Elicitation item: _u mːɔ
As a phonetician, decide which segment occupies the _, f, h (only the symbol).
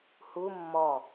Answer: h